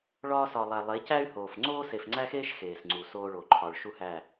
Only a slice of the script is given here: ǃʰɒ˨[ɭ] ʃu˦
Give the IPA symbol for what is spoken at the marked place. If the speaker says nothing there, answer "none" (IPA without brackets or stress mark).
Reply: ɭ